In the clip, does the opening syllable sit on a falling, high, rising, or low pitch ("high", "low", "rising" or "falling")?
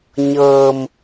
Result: low